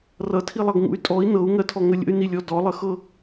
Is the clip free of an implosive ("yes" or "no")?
yes